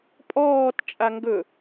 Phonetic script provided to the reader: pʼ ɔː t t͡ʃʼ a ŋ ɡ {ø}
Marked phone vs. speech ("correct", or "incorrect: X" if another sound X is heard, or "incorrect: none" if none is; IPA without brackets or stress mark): incorrect: ɵ